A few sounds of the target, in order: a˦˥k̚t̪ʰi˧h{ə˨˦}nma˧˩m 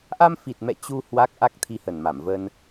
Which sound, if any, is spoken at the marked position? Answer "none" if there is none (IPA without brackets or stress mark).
ə˨˩